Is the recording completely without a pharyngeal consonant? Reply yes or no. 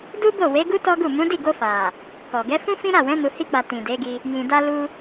yes